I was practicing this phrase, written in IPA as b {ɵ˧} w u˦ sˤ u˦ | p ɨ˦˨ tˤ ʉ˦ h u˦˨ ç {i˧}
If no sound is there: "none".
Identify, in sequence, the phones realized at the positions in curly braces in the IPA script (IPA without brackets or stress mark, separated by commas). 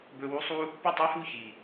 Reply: ɵ˧, i˨